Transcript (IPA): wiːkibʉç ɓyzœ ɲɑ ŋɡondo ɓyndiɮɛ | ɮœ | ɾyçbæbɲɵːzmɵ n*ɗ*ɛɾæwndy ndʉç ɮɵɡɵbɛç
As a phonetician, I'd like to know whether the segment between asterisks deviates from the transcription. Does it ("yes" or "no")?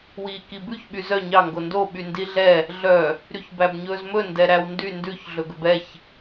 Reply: yes